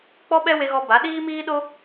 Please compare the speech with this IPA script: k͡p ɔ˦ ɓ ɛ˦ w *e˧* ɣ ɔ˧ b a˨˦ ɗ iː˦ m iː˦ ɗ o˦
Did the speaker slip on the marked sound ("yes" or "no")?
no